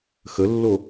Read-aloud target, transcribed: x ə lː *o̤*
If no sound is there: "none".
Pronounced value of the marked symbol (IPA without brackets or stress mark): o